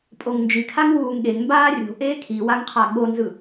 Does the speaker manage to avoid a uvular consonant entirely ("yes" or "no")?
no